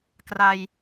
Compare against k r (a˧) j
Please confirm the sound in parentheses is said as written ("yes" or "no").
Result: yes